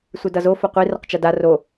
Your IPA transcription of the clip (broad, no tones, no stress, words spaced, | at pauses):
sʷɨdʌzo foqʷi rʌqt͡ʃada ro